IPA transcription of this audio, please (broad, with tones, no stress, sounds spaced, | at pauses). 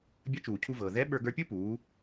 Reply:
bʲ ɐ˧˥ t͡ʃ uː˩ cʰ u˧ v ɤː˩ ð ɛ˧˥ ɓ ə˞˧ ɡ ə˞˧ pʲ ɯ˥ p uː˩˧